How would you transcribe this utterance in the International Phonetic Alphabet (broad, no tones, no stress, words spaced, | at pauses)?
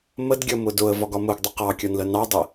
mədɡʲʌmʊ dʊə̯vɒɡɒ mʊɡdˤə qɑkʲɒnlə nɑdˤə